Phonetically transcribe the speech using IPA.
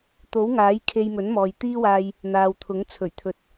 t̪ o˨˥ w ŋ aː˨˥ j kʰ e˧ j m ɵ˨˥ n m ɔː˨ j t̪ iː˥ w aː˧ j | n̪ aː˨ w t̪ʰ ʊ˨˥ ŋ t͡sʰ ɵ˨˩ ɥ t̪ʰ ɵ˧ t̚

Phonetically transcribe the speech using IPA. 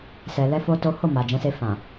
s ɛ˧ l ɛ˦ f o˦ t o˦ h o˦˨ m a˨ d͡ʒ ɛ̃˨˦ s e˧ f ã˨

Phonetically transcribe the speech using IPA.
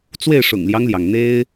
t͡s w e˥˨ ɪ̯ ʂ ʊ̰˨˩ ŋ l j ɑ˦ ŋ l j ɑ˩ ŋ n̪ e˦ ɪ̯

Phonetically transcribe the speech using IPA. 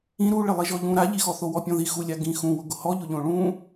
ĩ ɾ u ɭ ɪ lˠ i ʒ ɔ ʎ ũ ɾ a ʎ i x ɔ θ o w ɔ pʲ ɔ̃ ð i x u lʲ a ɡ ĩ x ũ w ʊ ɡ ʊ h ɔ ʎ ʊ ʎ õ ɭ ũ

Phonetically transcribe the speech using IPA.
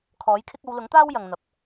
kʰ ɔː˨˥ j kʰ ɪ˥ k̚ ɐ˨˧ w l ʊ˨˥ ŋ t̪ aː˥ w j ɐ˨ ŋ n̪ ɐ˨ p̚

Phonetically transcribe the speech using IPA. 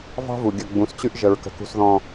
v ɑ̤˦ v u˨ ɡʲ ə˨ ɡ͡b ũ˨˦ s t͡ɕ ʉ˦ ʔ ʒ ə˨ ɹ k ə̤˦ k ṳ˦ s ð ɔ̃˦

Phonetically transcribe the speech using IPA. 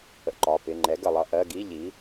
ə̰˧ ǃ ɒ˩˧˩ p ɪ˩˧˩ ŋ͡ǃ ɛ˩˥ ɡ ə˧˩ lˠ ʌ˧ ʔ ɜ˧˥˧ ɡ i˧˥˧ ʎ i˩˥

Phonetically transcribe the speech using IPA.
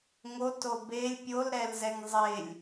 ŋ o t o b e lʲ pʲ o l ɾ ɛ l z ɛ ŋ zˤ e lʲ

